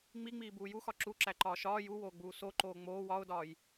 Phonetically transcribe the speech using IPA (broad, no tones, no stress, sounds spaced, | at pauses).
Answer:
ŋ͡m i ŋ͡m iː b uː j u x ɒ ǁ u ǁ æ ǃ ɒː ʃ ɒː j u w oː ɡ͡b uː s o ǃ oː ŋ͡m oː w ɒ ʊ̯ d ɒː j